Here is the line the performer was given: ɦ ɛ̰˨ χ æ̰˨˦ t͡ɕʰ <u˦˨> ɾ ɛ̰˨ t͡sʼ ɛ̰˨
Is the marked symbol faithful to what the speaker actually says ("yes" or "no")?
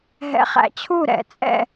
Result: yes